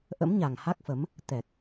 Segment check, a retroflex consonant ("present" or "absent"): absent